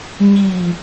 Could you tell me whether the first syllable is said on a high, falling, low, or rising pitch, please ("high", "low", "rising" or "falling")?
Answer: low